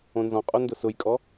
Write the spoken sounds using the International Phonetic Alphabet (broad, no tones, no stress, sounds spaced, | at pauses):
õ n z ɔ̃ qʼ o n d ʊ s ʊ j kʼ ɔ